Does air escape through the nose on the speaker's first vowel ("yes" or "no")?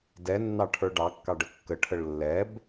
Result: no